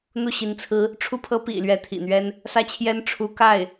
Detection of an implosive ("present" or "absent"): absent